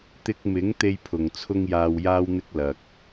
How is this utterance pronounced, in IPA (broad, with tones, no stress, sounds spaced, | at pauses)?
t̪ ɪ˧ k̚ m ɪ˨˥ ŋ t̪ e˥ j pʰ ʊ˨ ŋ t͡sʰ ʊ˥ ŋ j aː˧ w j aː˥ w n̪ ɪ˥ k̚ l ɐ˧ k̚